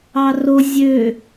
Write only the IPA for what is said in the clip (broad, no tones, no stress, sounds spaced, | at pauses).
ɑ r o zʲ ø